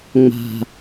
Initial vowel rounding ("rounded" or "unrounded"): unrounded